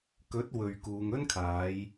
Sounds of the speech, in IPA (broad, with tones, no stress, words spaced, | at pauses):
kɵ˨˥t̚ wɵ˨ɥkuː˨˧ŋɵ˥nkʰaː˨˧j